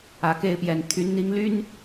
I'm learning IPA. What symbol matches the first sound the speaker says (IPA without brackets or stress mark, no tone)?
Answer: ä